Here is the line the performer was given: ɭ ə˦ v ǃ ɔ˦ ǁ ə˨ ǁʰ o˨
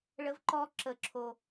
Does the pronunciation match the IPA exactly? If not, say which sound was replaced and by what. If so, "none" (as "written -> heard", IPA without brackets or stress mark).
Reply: none